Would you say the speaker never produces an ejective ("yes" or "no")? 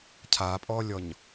no